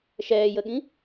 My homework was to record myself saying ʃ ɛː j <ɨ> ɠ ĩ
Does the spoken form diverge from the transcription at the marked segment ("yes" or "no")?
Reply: yes